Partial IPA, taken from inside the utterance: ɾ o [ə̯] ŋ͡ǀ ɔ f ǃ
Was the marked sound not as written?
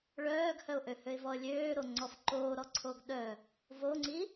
yes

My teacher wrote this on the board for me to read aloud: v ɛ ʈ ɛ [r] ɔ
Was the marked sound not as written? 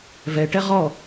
yes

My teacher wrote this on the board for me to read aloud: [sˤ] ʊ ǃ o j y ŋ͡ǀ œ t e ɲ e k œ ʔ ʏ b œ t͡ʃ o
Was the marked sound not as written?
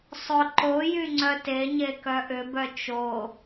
no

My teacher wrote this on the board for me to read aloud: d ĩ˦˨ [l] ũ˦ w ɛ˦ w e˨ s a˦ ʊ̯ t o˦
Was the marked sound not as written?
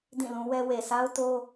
no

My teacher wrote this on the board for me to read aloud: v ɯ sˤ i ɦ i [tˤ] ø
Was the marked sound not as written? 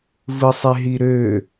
yes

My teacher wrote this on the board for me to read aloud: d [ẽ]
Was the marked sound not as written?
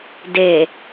yes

